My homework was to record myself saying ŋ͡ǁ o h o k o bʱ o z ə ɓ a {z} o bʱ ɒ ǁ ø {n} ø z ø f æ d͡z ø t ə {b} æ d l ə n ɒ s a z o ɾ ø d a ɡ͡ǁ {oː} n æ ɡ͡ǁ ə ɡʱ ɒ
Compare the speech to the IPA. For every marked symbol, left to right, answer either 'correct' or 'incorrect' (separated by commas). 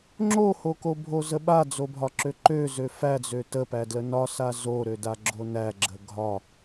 incorrect, incorrect, incorrect, incorrect